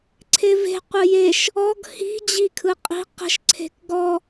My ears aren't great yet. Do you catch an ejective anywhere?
yes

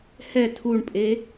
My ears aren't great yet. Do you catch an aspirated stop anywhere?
yes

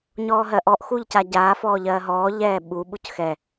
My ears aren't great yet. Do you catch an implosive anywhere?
yes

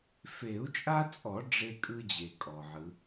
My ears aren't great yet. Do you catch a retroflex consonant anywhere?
yes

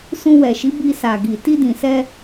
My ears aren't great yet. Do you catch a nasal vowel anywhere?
yes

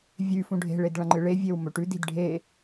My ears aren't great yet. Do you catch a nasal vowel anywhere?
yes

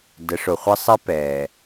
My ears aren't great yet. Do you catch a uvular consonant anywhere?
yes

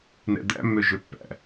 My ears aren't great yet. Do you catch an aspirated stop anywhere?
no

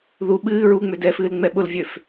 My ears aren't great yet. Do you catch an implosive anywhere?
yes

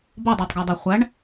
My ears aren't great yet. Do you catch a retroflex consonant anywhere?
yes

